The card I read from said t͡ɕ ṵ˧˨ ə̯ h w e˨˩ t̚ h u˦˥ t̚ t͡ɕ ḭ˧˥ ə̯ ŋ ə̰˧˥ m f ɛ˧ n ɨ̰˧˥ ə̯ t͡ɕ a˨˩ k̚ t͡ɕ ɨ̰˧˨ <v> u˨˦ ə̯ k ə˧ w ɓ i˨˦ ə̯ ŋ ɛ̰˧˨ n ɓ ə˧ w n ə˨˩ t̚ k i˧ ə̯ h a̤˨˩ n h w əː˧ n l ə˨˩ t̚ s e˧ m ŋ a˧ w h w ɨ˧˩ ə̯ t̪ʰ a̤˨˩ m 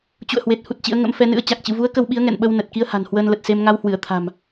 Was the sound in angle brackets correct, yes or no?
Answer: yes